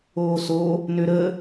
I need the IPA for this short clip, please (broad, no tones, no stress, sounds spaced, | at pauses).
oː s o | n ø ɾ ə